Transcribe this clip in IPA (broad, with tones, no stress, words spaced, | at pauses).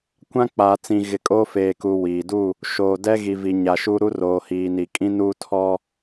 kʷã˦ k͡paː˨t͡sĩ˨ ɣɪ˨kʼoː˦feː˨ku˨ wiː˨ du˦˨ | ʃoː˨dɛ˦ɣi˨ vi˨ɲa˨ʃu˦ ɾu˦ roː˨hiː˨ni˨ kʼĩ˦nuː˦ tʰɔ˦